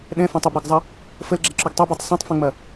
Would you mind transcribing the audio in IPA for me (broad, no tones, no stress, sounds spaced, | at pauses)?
ɗ ɛ̃ f æ̃ tˤ ə b ɾ ɤ ɡ zˤ ɐ | f ə l ɡ͡ǁ ɛ ǁ o ɡ tˤ ɛ b o tˤ sˤ ɛ̃ tˤ f ɛ̃ ŋ͡m ɐ